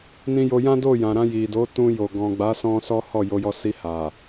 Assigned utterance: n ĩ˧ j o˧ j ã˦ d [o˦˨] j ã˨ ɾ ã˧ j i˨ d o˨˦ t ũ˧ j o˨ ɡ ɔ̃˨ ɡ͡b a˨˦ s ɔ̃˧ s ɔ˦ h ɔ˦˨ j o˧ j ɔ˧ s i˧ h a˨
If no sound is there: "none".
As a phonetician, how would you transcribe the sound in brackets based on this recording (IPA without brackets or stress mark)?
o˦˨